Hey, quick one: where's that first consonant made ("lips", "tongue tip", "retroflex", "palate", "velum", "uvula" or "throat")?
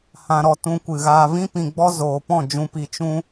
throat